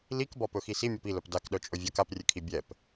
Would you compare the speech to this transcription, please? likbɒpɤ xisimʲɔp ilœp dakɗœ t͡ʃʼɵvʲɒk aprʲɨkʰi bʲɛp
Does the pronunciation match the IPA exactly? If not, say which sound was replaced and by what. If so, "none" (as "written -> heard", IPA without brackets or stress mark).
ɤ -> ɵ